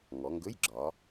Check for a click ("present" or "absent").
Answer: present